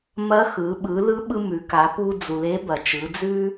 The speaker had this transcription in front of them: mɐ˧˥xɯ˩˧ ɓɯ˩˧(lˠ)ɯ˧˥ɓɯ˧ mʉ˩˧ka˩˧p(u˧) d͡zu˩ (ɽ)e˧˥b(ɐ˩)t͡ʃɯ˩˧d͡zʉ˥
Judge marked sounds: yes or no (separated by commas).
no, yes, no, yes